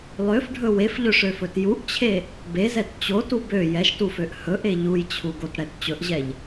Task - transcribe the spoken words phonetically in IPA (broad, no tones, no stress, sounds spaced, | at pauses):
lˠ ø f ɖʱ ɵ w e f ʎ ɵ ʂ ø f ɵ t j u ʔ t͡ɕʰ e | b e z ɛ t t͡ɕ o t u b ø j ɛ ʃ t u f ø ʔ h ɵ ʔ e ʎ u j t͡ɕʰ u ɡ o t ɽ ɛ t t͡ɕ ɵ ʔ ʑ ɛ ʎ